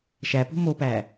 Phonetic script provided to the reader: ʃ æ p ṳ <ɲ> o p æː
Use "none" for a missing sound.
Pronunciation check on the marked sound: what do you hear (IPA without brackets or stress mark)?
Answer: m